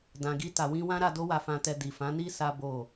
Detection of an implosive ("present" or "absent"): absent